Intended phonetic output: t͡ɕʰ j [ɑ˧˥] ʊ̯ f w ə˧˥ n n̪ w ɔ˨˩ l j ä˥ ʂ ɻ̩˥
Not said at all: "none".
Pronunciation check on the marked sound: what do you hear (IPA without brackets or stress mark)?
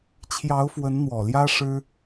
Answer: ɑ˧˥